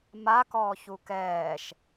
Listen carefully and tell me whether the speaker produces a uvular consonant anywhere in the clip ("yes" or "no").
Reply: no